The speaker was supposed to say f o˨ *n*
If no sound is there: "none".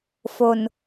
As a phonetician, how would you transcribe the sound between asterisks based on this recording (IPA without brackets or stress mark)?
n